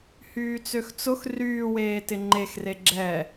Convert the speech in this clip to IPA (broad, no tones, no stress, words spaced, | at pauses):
hyːt͡søxt͡sʊx ryːweːtɪ ŋ͡ǃexre ɡ͡ǁɛ